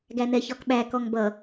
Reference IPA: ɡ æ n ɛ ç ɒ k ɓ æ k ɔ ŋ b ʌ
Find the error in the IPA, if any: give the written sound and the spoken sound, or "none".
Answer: none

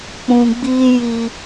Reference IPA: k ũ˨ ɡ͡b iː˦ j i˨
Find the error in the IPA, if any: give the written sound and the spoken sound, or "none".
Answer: k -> k͡p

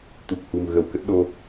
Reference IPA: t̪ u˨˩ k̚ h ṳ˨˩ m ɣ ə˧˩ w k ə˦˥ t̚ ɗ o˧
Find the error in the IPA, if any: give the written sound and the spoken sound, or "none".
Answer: none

